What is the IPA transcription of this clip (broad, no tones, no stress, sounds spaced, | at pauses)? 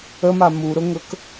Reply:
ə m a m u ɾ ʊ ŋ ɵ k